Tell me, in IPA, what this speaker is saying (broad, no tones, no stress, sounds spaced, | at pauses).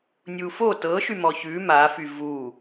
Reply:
nʲ u f o t ɤ ʃ y m ɔ ç ʉ m a f y v u